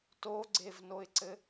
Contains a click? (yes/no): yes